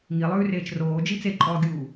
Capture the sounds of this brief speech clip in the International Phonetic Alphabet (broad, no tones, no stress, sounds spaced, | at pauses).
ŋ i lˠ ʉː r eː t͡ʃ r oː d͡ʒ i t͡s e ǃʼ ɔː ɡʲ uː